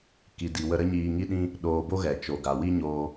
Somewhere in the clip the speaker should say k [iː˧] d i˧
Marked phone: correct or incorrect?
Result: incorrect